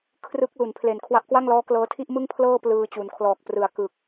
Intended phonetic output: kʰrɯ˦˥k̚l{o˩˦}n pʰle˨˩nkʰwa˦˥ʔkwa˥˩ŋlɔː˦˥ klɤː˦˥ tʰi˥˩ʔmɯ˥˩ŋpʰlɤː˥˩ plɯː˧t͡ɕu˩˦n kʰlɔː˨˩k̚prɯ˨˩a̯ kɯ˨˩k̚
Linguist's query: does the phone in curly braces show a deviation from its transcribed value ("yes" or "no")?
yes